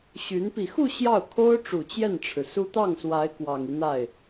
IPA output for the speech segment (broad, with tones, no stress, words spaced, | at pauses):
ɕy˧˥n pi˨˩xu˥˧ ɕjɑ˥˩ʊ̯kʰo˥ʊ̯ʈ͡ʂu˨˩ t͡ɕjɛ˥˩nʈ͡ʂʰɻ̩˩su˥ t̪ɑ˥˩ŋswa˧˥ɪ̯ kwɑ˨˩ŋi˦n̪a˥˩ɪ̯